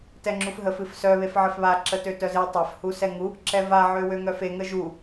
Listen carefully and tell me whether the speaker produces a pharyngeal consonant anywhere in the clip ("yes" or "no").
yes